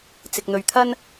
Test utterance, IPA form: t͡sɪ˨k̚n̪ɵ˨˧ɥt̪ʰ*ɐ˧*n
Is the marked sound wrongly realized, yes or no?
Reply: yes